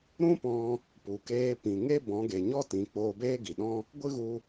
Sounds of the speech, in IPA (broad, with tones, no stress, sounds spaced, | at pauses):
ɾ ũ˦ p ɔ̃˧ | p u˨ k eː˧ p ĩ˨ ŋ e˦ b ɔ̃˨˦ ɡ e˨ ɲ ɔ˦ t ĩ˨ k͡p oː˧ b eː˦ ɡ i˨ ɗ ɔ̃˦ | ɡʷ ɨ˦ ɣ u˧